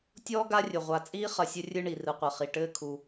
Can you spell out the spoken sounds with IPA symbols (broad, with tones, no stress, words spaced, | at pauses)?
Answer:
tʲɔː˥ɡa˦rʲɘ˩ ʁʷa˨t͡sʼiː˥ χɐ˨sʲɘ˦rʲɨ˦ ɳi˩rɨ˨qʷɐ˩χi˩ ʈɘː˦kʰu˩